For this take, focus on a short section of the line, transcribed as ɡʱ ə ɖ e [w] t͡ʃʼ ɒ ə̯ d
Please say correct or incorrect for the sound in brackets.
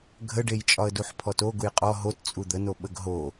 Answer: incorrect